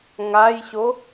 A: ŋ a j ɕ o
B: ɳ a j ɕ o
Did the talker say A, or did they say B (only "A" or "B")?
A